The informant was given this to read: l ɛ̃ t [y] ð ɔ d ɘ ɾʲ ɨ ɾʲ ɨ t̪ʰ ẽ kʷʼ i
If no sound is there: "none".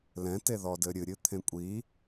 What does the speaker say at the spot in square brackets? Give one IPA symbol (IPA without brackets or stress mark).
e